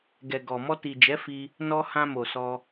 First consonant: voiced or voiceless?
voiced